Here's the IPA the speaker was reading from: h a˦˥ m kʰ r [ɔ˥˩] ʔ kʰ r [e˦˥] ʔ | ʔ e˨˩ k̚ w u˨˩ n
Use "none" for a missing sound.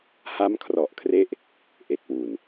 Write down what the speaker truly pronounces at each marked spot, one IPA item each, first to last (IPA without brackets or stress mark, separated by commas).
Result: ɔ˨˩, e˦˥